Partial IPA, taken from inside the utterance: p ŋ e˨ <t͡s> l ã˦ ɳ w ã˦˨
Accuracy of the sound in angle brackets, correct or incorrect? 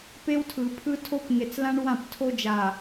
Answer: correct